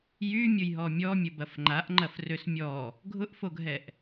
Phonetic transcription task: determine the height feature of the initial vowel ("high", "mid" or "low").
high